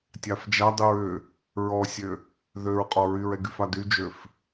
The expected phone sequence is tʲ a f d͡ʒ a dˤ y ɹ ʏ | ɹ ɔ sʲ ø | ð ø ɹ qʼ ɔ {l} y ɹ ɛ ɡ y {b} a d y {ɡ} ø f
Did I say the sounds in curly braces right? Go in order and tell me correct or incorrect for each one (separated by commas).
incorrect, incorrect, incorrect